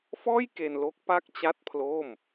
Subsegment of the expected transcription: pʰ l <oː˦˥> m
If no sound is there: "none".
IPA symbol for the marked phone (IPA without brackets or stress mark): oː˥˩